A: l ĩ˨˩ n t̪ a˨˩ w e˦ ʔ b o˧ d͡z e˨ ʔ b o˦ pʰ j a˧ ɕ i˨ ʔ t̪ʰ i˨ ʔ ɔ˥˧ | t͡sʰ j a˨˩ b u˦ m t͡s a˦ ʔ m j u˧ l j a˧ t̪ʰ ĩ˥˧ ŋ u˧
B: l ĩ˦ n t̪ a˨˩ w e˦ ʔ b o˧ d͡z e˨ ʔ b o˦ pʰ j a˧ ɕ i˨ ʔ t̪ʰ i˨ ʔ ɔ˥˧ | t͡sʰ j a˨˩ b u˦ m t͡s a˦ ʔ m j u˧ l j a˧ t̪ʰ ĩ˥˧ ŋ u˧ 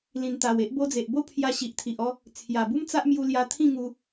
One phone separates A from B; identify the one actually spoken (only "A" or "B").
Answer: A